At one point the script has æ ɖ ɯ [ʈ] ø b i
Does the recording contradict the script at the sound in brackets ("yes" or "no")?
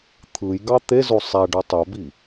yes